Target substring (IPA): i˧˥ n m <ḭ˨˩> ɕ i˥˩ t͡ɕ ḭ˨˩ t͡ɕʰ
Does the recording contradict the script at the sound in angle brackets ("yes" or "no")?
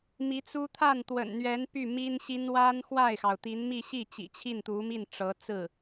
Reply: yes